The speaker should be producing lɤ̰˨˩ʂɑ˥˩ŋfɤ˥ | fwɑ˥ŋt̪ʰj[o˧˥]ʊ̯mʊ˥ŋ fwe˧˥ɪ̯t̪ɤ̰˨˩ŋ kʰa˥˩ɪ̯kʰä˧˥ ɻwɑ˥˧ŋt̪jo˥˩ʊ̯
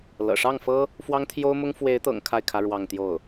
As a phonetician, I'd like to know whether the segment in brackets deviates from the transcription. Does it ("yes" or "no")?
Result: yes